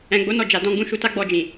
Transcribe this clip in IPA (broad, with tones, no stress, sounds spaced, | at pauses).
ɛ̃˨ ɡ͡b o˨˦ n ɔ˦˨ d͡ʒ a˨ d ɔ̃˧ ɡ͡b ũ˧ ʃ u˧ t a˦ ɡ͡b ɔ˧ d͡ʒ ĩ˨